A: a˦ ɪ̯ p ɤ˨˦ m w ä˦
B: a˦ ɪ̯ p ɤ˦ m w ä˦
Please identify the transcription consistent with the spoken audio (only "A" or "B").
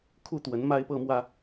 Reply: B